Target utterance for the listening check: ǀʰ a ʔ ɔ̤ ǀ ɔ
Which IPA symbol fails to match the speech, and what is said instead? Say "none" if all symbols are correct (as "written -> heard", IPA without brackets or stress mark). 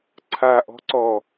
none